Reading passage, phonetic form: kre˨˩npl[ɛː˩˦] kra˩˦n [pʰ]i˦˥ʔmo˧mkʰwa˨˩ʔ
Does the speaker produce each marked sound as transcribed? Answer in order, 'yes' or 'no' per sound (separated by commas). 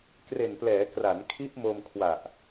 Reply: yes, no